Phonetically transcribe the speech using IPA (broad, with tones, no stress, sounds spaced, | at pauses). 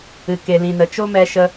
ɨ˨ k e˨ l ĩ˨ n ə˨ t͡ʃ o˦ m ɛ˧ ʃ ə˧